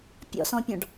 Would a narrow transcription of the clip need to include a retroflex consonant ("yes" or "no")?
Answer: yes